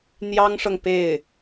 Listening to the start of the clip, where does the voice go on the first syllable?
high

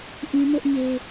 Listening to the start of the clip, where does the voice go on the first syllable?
high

